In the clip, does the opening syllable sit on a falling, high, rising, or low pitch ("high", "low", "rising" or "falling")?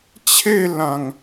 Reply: falling